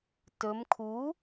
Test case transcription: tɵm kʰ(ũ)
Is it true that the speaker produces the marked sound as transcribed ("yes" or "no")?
no